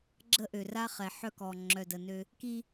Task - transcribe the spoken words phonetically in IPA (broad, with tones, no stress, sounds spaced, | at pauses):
ɡ͡ǁ ə˦ ʔ ø˨ r a˦ χ ɛ˨ ħ œ˦ k ɔ˨ ŋ͡ǁ œ˨ d ə˨ n ø˦ | k i˦